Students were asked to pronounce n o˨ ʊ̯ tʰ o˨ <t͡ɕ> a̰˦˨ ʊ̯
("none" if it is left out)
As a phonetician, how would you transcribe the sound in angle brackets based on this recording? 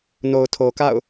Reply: k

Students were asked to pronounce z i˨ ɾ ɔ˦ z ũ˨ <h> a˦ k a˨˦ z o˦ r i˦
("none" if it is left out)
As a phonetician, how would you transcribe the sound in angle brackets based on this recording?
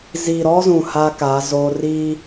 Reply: h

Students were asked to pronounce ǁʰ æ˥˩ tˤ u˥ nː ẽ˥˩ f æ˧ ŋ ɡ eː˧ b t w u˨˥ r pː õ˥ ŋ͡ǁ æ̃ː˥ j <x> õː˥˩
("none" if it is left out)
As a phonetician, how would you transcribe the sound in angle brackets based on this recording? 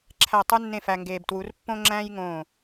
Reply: ŋ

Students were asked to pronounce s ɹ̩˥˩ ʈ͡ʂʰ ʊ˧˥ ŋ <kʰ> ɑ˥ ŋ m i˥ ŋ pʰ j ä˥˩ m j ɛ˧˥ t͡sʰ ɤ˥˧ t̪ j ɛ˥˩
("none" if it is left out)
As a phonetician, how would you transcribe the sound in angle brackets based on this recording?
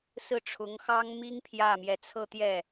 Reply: x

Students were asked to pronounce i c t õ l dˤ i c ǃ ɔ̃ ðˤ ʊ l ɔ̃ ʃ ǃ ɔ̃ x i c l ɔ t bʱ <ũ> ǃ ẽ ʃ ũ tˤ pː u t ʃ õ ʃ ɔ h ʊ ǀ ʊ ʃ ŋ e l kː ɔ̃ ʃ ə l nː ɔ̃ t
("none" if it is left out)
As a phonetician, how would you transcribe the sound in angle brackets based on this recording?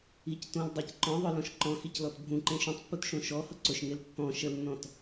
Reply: ũ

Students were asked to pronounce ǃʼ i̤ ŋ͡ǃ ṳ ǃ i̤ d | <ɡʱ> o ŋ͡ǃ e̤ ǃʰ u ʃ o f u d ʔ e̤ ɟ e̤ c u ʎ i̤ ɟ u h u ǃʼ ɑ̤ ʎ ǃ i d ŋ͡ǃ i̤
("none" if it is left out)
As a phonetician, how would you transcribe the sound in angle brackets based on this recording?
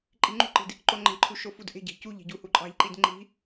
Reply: ǃ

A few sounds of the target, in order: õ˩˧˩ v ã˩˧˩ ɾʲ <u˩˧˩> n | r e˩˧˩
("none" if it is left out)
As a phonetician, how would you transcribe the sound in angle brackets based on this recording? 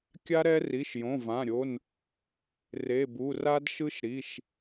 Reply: o˩˧˩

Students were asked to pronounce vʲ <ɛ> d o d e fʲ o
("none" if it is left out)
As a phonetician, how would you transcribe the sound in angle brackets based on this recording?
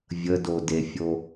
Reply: ə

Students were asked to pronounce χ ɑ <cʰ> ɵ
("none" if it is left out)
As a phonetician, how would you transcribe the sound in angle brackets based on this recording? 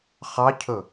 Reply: cʰ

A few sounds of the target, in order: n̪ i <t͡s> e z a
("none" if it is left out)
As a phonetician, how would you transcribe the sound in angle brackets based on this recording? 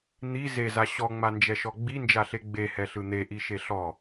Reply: z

